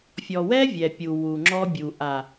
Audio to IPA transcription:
fʲɔ˨wɛ˦ vʲɛ˨pʲu˨ wu˨ŋ͡ǁɔ˦bʲu˨ ʔa˨

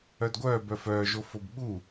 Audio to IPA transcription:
œdɡʷœː bœfœːʒo fobɓu

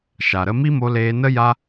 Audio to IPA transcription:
ʃa˨ɾə˦ mi˦mo˧leː˧nə˦ ja˦

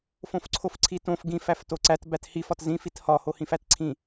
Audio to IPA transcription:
fõfǀʰofǀʰitõf ɡĩf æftoǀæt bæthif ɒtzĩ fithɒ hohĩfætǀʰĩ

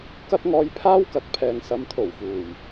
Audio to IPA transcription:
kɐ˥t̚ŋɔː˧jpʰaː˥w kɐ˨˥t̚pʰɛː˨ŋ sɐ˨˧mt̪ʰo˨˩wfuː˨˩j

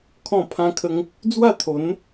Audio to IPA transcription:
kʰɔ̃˥˧pʰã˦kʰə˦ŋ | d͡zwa˥˧t̪ʰo˨˦n

